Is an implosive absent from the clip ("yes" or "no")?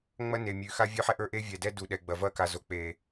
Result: no